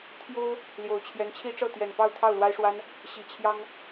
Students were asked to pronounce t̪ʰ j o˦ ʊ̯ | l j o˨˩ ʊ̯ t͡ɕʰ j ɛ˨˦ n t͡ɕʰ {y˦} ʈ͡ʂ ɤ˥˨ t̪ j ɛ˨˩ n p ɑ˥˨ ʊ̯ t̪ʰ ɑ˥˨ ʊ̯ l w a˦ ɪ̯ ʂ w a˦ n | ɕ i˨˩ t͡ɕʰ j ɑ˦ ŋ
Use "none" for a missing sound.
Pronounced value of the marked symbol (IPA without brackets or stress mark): i˦